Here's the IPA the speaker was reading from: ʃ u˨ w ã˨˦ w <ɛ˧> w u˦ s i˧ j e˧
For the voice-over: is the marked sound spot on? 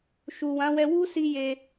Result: yes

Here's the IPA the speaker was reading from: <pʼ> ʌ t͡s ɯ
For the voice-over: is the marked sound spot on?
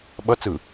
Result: no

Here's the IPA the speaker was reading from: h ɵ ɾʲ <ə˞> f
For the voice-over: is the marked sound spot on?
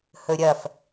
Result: no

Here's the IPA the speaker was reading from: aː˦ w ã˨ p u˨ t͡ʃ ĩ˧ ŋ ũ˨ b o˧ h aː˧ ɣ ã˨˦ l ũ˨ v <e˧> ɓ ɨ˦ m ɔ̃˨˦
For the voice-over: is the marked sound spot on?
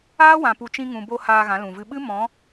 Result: no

